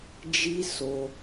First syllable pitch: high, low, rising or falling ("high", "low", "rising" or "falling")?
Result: high